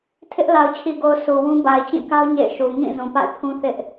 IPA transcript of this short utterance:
tʰ ɪ˦ ʔ l a˨ ʊ̯ t͡ɕʰ i˨ ɡ o˨ ʊ̯ sʰ u˨ w ũ˦ b a˨ ɪ̯ t͡ɕ ĩ˦˨ k a˦ ʊ̯ ɲ ḛ˦˨ ɪ̯ ʃ u˨ ŋ ĩ˦˨ z ũ˨ p a̰˦˨ ɪ̯ pʰ ũ˦ θ ɪ˦ ʔ

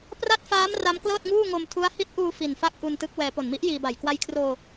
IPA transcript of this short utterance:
p r a˥˩ t̚ f aː˦˥ m r a˦˥ m k l ɤː˥˩ t̚ ŋ uː˥˩ ŋ o˧ m tʰ u˦˥ a̯ h i˦˥ t̚ ʔ uː˧ f i˨˩ n f a˥˩ k̚ ʔ u˧ n t ɯ˦˥ k̚ w ɛː˧ p o˨˩ n m i˦˥ ʔ j iː˧ b a˨˩ j k w a˧ j kʰ r oː˧

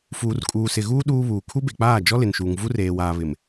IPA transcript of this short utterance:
f uː˨ r kʼ uː˨ s ɪ˨ ɣ uː˦ ɗ uː˦ β uː˨ kʰ u˦ b e˨ k͡p aː˦˨ d͡ʒ ɔ˦ l ɪ˨ n ʃ uː˨ ŋ v u˦ r eː˨ w aː˨ β ɪ˨ m

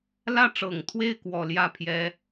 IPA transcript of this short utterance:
l ä˥˩ ʈ͡ʂ ɤ˨˩ ŋ t̪ʰ w e˥˩ ɪ̯ k w ɔ˨˩ l j ä˥˩ pʰ j ɛ˧˥

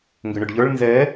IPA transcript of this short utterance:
ŋ ɡ ʏ ɳ ʏ ɖ ʎ ə˞ ɭ n z ɛ

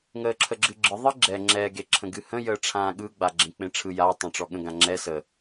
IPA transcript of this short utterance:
ŋ əː ǁʰ ə ɡ͡ǁ ɨ ɡ͡ǁ ɯ ðˤ ɨ ɡ͡ǁ ɛ ŋ͡ǁ ɛ ɡ e ǁʰ ə̃ ɡ ɨ h ə̃ j əː ʈ͡ʂʰ ãː ɠ ɯ ɡ͡b a ɡ͡ǁ ẽ k͡p ẽ ʈ͡ʂʰ ɯ j a tˤ õ ʈ͡ʂ ɔ ɠ ə̃ ɡ ã ŋ͡ǁ ɛ s ə

